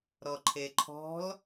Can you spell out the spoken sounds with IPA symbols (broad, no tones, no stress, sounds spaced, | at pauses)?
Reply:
ɾ ɔ ǃʰ e ǃʰ ɔ̤ l